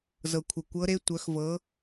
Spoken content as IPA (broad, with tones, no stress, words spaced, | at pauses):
zɤ˩kʷʰə˩ kʷɤ˧˥ɾe˧˥ tʷœ˩˧xvɤ˩˧